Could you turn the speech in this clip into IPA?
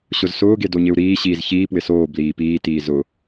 ɕ ʊ z s ʊː ɡ e d o ɲ ɪ u̯ ɾ iː ɕ iː z ç iː p w ɪ s oː b l iː p iː t iː z ʊ

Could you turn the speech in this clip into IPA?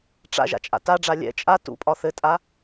ʈ͡ʂ a̰ ʒ a̰ t͡ʃʼ a̰ t a ɖ͡ʐ a lʲ ɛ̰ t͡ʃʼ a t ṵ pʼ ɒ θ ɘ tʼ a

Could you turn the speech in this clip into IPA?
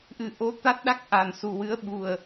ʔ ɨ˨˩ ʔ o˧ t̪ a˦˥ t̚ ɗ a˦˥ k̚ ʔ a˨˩ n s u˨˩ w ɨ˧˥ ə̯ ɓ u˨˩ ə̯

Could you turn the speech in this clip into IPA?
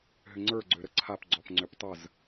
ɦ ʏ ŋ͡ǀ ə˞ ɡ͡ǀ ø ɾ ə ǀʰ a p ɡ͡ǀ ɔ p ŋ͡ǀ ʏ p tˤ ə z

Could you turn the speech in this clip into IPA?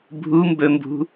bʱ u m b ɵ m b ṳ

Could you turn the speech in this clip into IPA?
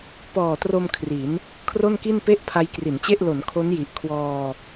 p ɔː˨˩ t r o˧ m kʰ r i˩˦ n | kʰ r o˥˩ n k i˥˩ n p e˥˩ ʔ pʰ a˦˥ j k r i˩˦ n t͡ɕ e˥˩ ʔ l o˩˦ n kʰ o˦˥ n j i˨˩ ʔ kʰ w ɔː˧

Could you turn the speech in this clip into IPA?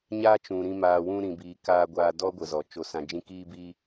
ɲ aː˦ t͡ʃ ũ˨ ɾ ĩ˧ m aː˨ w ũ˧ ɾ ĩ˨ b iː˨ k aː˧ ɡʷ aː˧ d ɔ˦ ɡʷ ə˨ z ɔ˨ t͡ʃ o˨ s ã˨ d͡ʒ ĩ˧ k iː˧ b iː˧

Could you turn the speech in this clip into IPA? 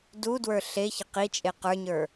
d u d w ə˞ ɬ e ç ə q i t͡ʃʼ e q ə˞ ɲ ə˞

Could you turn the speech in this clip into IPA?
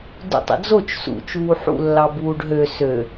d ṵ tˤ ə̰ d͡z o t͡ʃ s ṵ t͡ʃ uː ħ ṵ lː ɑ b uː ɖ ɦ ø s ø

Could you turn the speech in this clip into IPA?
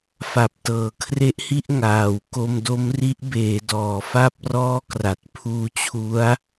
f a˨˩ p̚ t ɤː˩˦ kʰ r e˦˥ ʔ h i˥˩ ʔ ŋ aː˨˩ w k o˧ m d o˦˥ m r i˦˥ ʔ b eː˩˦ d ɔː˨˩ f a˥˩ p̚ r ɔː˥˩ k r a˨˩ t̚ pʰ uː˧ t͡ɕʰ u˦˥ a̯

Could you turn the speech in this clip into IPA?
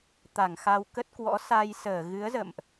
t̪ a˧˩ ŋ x a˧ w k ə˦˥ t̚ k w ɔ̰˧˥ s a˧ j s əː˧˩ ɣ ɨ˨˦ ə̯ z ə̰˧˨ m ʔ

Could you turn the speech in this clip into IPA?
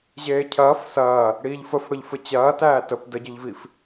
ʑ eː cʰ ɐː f s ɐː | ɽ iː ʎ f ə f ɽ ə ʎ f ɘ t͡ɕ ɐː t æː t ə p d ə ɟ ɘ ʎ v i f

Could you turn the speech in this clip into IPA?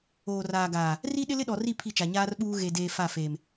oː˨ r aː˨ ɡ aː˨ | r i˦ ɗ ɪ˦ l ɪ˦ ɗ ɔ˨ r i˦˨ pʰ i˦˨ t͡ʃ a˨ ɲ aː˦ r ɓ uː˦ ɣ e˨ d eː˨ f a˦˨ f eː˨ m

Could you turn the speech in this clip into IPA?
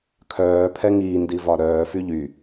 kʰ œː pʰ ɛ ŋ iː n d i v ɒ ɾ œː f y ʎ y

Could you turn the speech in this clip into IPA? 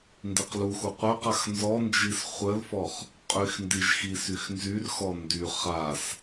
n d i q l u x u qʷ œ q a x n z ɔ n d͡ʒ i s χʷ ə l f ɔ χ | qʼ y x n d i ʒ x i s y x n z y r x ɔ n d y χ a s

